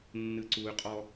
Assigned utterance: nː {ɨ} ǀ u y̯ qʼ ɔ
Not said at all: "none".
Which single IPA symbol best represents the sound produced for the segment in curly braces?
ɨ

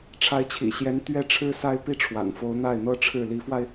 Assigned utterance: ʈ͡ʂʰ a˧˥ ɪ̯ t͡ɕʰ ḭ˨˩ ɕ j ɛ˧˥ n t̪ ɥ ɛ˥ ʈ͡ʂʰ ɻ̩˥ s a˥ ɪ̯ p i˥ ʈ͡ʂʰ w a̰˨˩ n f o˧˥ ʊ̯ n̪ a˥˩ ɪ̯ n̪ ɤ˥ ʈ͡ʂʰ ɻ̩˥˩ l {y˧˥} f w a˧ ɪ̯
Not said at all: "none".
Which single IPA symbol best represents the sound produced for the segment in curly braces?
i˧˥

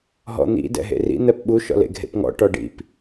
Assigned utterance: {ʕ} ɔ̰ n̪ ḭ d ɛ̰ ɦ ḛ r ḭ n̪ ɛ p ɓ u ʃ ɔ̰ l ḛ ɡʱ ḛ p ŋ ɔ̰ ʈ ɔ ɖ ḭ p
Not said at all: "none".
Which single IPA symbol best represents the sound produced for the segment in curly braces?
ɦ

